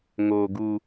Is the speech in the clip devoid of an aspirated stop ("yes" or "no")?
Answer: yes